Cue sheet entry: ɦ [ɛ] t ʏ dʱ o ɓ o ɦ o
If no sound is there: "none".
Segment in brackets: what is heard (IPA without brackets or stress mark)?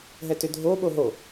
ɛ